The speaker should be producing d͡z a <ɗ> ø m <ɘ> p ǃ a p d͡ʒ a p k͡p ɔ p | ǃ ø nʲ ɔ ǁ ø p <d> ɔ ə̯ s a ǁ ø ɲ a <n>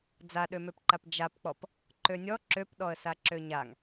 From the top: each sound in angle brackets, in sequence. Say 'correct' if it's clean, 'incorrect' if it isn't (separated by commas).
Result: correct, incorrect, incorrect, incorrect